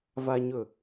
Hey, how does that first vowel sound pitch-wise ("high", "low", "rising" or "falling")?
low